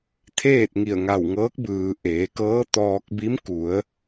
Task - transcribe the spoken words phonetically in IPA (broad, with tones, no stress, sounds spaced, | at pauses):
t̪ʰ eː˥˨ t̚ ŋ i˧˩ ə̯ ŋ a˧˩ w ŋ ɤː˧˥ k̚ b ɯː˩ ʔ eː˩˧ k ɤː˧˥ t̪ ɔː˧ k̚ b i˧˥ m k u˩˧ ə̯